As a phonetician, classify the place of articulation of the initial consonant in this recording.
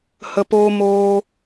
glottal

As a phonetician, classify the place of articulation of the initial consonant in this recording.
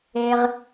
uvular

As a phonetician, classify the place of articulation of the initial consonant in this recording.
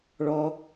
retroflex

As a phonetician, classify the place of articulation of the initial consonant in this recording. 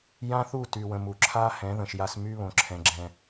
palatal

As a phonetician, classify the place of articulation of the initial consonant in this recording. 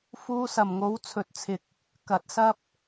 labial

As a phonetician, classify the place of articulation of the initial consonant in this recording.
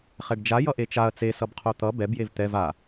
uvular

